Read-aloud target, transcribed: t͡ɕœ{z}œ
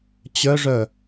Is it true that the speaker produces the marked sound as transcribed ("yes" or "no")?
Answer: no